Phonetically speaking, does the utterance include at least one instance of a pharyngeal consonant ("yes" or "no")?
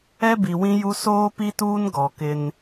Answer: no